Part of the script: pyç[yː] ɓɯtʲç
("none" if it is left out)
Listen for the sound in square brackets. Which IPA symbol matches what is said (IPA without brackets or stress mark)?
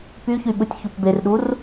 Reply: y